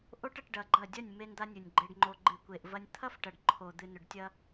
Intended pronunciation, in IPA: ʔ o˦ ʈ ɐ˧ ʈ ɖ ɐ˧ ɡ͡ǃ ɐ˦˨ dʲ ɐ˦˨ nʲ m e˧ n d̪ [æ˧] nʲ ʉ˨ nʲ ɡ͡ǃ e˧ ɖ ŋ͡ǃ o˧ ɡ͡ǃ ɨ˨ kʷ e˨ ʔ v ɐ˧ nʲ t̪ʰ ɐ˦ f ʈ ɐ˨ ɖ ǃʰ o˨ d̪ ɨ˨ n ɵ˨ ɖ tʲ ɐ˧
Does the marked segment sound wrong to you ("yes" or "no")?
yes